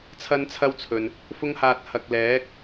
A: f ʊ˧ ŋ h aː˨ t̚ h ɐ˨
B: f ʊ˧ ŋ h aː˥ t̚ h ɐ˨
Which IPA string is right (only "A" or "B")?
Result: A